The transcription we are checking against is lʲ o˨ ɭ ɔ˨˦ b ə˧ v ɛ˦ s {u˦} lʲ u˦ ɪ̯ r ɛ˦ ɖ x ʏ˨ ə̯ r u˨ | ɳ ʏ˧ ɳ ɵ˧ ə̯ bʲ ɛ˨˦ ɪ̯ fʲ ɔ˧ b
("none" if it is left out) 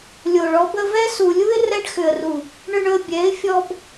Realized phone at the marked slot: u˨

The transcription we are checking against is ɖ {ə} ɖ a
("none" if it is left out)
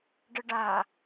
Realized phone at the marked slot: ə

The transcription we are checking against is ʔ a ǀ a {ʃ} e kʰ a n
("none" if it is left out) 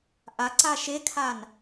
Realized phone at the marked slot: ʃ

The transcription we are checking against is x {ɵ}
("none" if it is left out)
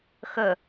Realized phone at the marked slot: ɵ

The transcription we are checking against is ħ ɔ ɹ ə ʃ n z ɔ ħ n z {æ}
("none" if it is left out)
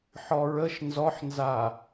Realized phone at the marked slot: a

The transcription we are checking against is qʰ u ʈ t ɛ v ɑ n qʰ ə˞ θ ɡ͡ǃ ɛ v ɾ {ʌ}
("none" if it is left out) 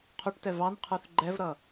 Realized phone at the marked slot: ʌ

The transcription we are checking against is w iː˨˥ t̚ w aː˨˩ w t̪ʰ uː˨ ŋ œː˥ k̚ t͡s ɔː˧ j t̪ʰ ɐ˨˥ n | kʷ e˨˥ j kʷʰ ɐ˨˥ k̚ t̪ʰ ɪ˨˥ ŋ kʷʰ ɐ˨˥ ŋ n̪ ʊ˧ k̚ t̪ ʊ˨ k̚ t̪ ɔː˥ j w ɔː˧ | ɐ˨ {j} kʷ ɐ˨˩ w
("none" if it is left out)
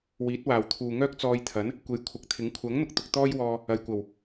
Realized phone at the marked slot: j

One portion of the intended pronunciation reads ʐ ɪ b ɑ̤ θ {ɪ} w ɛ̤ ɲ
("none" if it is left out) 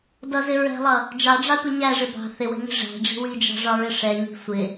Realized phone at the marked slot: ɪ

